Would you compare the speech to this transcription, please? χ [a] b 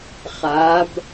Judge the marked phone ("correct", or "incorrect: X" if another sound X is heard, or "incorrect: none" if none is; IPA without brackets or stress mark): correct